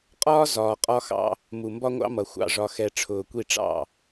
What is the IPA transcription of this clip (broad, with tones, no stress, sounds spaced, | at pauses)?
qʼ ɒː˦ z ɒː˨ qʼ ɒ˦ x ɑ̰˦ | m u˨ m b ɒ˦ ŋʷ ɑ̰˦ m ʌ˨ xʷ ɑ̰˨ ʐ ɒ˨ x ɛ˨ ʈ͡ʂʰ ʊː˨ kʷ i˦˨ ʈ͡ʂ ɑ̰˦˨